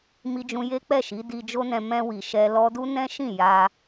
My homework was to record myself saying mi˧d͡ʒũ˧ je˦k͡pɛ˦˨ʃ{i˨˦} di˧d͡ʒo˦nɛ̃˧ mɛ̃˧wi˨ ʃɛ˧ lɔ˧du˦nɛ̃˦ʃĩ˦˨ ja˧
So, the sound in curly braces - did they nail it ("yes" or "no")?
yes